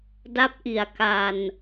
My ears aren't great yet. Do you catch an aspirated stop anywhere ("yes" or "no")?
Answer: no